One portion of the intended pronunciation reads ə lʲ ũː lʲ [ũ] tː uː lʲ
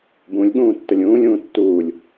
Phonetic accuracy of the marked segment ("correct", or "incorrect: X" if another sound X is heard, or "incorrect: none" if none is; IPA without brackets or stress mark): incorrect: ũː